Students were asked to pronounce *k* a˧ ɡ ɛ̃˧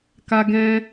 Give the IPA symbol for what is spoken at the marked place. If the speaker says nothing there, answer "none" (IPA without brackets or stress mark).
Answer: k